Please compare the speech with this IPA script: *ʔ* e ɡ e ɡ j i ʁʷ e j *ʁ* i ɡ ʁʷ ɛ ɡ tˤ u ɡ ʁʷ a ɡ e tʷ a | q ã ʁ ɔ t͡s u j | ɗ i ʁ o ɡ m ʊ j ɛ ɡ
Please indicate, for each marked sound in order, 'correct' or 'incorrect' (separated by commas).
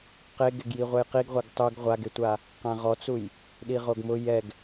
incorrect, incorrect